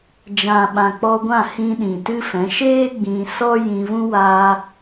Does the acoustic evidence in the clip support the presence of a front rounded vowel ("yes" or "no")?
no